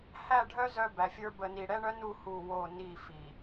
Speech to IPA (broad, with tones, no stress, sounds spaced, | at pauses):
h æ˦˨ ɖʱ œ˦ z œ˦ b æ˨ fʲ ə˞˦ b ə˨ n i˨ ɽ ɛ˦ ɳ œ˦ n u˦ h u˦˨ w o˦˨ n i˦˨ f i˨